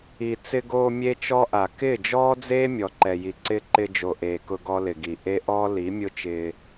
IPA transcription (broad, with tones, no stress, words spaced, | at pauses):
i˨ t͡sɪ˧ɡoː˧ mʲe˦t͡ʃɔ˦ʔa˨ kɪː˦˨d͡ʒɔː˦d͡zeː˦ mʲɔ˨ǃɛ˨ji˨ǀɪː˦ ǃɪ˧ d͡ʒo˨ʔeː˨kʊ˧ ɡɔ˦lɪ˨ɡi˨ ʔe˦ʔɔː˦ li˨˦mʲʊ˦t͡ʃɪː˧